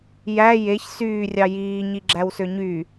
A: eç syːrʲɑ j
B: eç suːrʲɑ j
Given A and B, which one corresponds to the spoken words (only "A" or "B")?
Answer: A